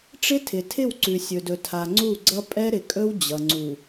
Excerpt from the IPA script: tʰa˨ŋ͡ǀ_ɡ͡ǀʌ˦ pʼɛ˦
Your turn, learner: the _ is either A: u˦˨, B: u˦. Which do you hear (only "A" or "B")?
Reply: A